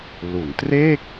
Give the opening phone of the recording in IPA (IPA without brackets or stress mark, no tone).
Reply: l